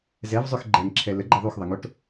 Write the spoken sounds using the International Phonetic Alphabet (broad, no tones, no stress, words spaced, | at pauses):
zɛvzˤøx ɡ͡ǃɛŋǁʰɛ ləɡ͡ǃi ðˤuxðˤəŋoʈ